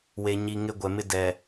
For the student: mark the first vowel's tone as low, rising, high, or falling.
low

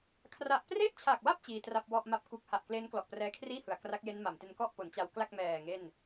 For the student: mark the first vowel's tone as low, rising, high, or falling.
low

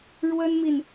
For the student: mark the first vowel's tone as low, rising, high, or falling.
high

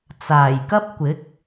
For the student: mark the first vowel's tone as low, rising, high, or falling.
low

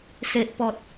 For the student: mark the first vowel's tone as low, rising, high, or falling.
low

